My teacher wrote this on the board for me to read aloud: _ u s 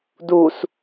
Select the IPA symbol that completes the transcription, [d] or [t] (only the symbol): d